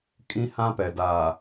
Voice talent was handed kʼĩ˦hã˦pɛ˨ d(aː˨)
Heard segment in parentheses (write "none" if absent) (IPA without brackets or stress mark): aː˨